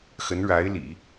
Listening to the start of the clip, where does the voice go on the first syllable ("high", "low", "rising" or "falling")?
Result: rising